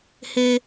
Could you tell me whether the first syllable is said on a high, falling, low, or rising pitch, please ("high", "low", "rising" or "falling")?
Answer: high